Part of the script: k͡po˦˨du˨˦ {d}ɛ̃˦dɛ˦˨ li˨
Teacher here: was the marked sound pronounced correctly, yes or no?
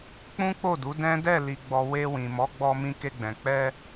yes